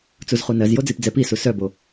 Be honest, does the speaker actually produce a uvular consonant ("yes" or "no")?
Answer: yes